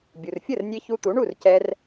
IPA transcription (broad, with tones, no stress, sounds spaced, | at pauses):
bʲ u˩ r fʲ ə˥˩ r nʲ e˧ ç u˧ t̪ u˩˥ ɳ u˥˩ r c ɛ˧ r